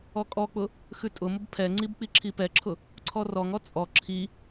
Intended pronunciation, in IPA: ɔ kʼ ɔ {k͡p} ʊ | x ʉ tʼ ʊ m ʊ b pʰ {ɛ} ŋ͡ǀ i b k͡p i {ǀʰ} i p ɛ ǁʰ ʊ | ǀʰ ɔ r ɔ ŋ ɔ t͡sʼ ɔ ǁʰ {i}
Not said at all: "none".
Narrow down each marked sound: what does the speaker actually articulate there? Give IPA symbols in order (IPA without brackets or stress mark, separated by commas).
k͡p, ɛ, ǁʰ, i